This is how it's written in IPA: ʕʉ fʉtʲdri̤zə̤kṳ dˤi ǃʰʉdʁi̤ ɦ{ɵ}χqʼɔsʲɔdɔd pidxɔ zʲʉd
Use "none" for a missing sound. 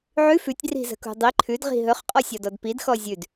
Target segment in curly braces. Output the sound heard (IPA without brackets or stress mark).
ɵ